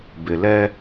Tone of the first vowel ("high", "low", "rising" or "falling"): low